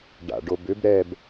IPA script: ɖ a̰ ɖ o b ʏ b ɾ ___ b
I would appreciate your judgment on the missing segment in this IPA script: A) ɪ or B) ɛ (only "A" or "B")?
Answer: B